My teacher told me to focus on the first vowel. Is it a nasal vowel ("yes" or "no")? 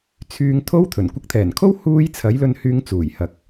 no